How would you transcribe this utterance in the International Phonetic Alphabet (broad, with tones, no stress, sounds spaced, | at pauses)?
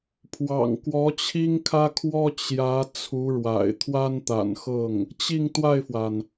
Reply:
pʰ w ɑ̰˨˩ ŋ k w ɔ˧˥ t͡ɕʰ i˥ ŋ kʰ ä˥ kʰ w ɔ˥ t͡ɕ j ä˧˥ t͡sʰ u˧˥ ɻ w a̰˨˩ ɪ̯ t̪ʰ w a˥ n t̪ a̰˨˩ n x ɤ˥˩ ŋ | t͡ɕ i˥˧ ŋ t̪ w a˥˩ ɪ̯ f w a˩ n